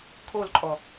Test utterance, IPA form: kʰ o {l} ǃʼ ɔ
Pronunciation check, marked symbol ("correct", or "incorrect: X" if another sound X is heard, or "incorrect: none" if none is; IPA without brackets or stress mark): correct